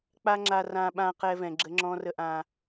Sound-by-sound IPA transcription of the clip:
k͡pa˧ ŋ͡ǁa˧rã˧ ɓã˦qɛ˦vɛ̃˧ ɡ͡ǁə˦ŋ͡ǁɔ̃˦ rə˦ʔã˦

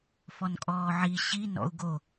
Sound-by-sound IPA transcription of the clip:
fɔnkʼɔːʕi ɕi nɔ̰u̯ɡo

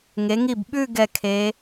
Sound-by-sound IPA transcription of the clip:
ŋe˩˧ŋi˧˩bɓʉ˥˧ ɡɛ˧˩kʰe˩˧

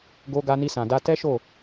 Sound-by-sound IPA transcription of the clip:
ɡo˧ ɡa˧ni˧sã˨da˧ tɛ˦ʃo˦˨

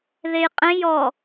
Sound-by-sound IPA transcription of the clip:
ðejqʼẽj ɔ

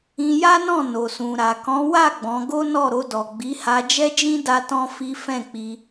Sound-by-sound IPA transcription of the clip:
ĩ˧ja˦nɔ̃˦˨ no˨ sũ˨ ɾa˨kɔ̃˨˦wa˦˨ ɡ͡bɔ̃˨˦ ɡo˦nɔ˦˨ɾo˧ dɔ˨ɡ͡bi˨˦ ha˧d͡ʒɛ˦d͡ʒĩ˦ da˦tɔ̃˦fi˦ fɛ̃˦˨k͡pi˧

